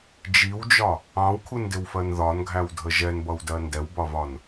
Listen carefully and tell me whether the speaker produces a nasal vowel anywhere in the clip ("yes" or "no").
yes